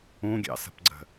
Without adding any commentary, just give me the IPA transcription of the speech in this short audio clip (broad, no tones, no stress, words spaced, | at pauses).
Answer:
ũɡʲɑ̰sə̤pɡ͡ǀə̤